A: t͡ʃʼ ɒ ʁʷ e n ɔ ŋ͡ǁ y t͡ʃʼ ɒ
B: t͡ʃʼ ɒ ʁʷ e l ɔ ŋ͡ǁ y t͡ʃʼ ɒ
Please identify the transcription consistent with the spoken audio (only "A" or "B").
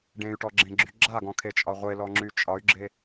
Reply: B